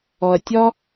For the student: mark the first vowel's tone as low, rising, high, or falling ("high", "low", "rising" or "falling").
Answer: low